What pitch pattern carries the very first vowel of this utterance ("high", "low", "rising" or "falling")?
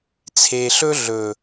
low